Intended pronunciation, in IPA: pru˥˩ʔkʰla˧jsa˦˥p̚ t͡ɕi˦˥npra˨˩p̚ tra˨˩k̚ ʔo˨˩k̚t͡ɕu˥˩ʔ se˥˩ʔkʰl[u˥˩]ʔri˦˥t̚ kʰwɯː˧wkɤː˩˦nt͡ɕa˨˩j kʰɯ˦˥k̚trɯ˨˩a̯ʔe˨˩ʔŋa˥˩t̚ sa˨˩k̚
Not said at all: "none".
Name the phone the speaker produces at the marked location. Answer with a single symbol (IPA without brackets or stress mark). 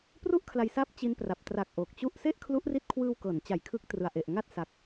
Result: u˦˥